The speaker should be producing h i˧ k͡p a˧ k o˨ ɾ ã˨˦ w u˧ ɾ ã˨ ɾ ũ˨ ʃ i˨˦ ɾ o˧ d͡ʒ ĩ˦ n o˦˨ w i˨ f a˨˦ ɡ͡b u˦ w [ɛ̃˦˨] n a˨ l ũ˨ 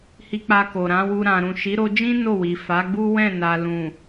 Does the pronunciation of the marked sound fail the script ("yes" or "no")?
no